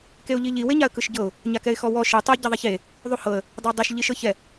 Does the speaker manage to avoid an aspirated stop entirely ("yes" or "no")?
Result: yes